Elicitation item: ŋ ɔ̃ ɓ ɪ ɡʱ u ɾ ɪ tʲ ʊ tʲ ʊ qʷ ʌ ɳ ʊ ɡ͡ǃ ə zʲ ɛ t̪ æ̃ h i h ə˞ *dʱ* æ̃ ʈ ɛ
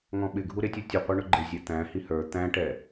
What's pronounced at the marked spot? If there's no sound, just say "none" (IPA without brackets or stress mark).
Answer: t̪